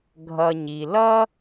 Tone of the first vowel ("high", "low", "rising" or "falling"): low